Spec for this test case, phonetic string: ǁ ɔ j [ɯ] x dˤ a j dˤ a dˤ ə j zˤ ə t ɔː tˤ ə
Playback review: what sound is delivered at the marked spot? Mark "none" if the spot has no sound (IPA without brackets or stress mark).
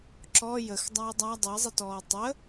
ə